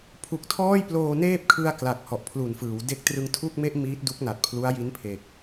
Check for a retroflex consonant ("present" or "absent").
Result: absent